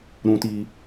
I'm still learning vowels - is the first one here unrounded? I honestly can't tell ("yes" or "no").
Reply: no